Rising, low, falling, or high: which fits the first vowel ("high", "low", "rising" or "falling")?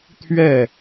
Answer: falling